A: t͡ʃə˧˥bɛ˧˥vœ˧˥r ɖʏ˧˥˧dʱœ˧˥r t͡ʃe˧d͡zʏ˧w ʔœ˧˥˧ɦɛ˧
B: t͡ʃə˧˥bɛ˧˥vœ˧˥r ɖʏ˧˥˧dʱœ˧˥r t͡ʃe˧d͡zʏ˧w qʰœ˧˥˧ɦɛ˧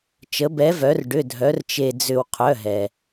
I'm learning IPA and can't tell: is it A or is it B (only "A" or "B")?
B